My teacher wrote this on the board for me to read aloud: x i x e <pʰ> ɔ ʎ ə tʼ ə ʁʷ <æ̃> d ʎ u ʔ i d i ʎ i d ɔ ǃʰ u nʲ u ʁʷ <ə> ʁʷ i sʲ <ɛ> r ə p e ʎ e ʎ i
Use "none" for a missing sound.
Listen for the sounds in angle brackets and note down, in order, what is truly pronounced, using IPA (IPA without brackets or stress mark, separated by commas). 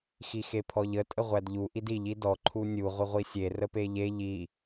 pʰ, æ, ə, e